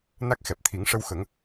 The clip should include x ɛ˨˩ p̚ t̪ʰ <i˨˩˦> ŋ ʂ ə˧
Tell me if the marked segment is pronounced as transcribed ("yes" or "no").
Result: yes